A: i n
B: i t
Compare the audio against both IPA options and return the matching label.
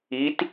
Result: B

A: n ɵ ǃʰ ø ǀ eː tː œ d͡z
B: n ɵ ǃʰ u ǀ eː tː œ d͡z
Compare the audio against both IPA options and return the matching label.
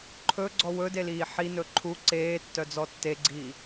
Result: B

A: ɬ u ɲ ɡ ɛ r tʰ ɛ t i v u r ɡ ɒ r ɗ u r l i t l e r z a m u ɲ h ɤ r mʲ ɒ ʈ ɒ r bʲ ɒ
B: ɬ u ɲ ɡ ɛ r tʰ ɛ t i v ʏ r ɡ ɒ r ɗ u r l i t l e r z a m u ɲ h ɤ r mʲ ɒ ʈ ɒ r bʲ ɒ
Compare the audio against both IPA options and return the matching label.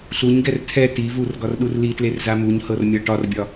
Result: A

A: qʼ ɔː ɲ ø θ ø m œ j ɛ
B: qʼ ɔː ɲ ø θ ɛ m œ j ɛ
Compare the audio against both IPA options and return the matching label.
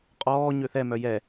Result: B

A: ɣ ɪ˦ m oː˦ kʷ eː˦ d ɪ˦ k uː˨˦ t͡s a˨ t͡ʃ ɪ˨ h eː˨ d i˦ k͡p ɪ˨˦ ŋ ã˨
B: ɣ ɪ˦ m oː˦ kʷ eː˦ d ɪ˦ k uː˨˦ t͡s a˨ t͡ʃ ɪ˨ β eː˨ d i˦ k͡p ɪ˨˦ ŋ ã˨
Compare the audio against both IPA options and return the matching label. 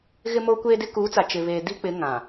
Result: B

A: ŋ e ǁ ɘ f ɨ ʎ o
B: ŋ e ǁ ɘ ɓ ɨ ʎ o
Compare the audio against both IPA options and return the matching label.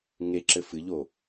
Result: A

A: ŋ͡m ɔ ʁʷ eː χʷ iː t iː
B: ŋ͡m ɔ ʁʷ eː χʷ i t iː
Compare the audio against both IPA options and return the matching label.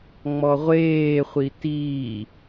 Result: B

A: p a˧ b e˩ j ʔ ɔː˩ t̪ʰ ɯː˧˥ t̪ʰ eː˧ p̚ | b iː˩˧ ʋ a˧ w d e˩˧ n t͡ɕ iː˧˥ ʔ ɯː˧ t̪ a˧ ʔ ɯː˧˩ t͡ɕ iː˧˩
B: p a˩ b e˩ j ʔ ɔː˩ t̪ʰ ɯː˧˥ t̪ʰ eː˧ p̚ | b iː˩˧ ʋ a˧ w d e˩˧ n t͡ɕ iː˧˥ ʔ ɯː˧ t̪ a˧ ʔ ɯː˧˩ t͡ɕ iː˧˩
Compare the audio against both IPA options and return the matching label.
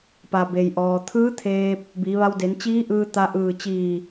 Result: B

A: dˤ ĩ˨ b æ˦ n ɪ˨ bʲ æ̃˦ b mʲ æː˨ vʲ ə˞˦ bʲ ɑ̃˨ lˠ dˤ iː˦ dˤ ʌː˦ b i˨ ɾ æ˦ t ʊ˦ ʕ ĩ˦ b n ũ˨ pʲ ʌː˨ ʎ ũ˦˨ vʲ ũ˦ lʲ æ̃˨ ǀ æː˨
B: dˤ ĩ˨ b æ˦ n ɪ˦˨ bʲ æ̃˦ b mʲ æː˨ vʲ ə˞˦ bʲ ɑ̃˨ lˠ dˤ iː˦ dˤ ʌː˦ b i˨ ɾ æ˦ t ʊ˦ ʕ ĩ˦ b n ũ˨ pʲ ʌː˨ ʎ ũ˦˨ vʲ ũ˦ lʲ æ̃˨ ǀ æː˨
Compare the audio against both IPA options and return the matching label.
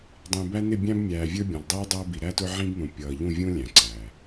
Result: B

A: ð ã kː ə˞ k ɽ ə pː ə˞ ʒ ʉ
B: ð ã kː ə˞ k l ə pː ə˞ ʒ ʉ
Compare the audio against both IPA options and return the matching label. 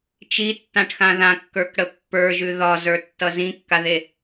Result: A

